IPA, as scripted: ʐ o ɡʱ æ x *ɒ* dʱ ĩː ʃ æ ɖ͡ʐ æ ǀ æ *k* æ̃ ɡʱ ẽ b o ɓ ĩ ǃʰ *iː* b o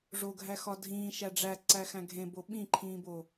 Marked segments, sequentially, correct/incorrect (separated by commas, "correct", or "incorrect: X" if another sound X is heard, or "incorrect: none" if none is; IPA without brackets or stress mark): correct, incorrect: x, incorrect: ĩː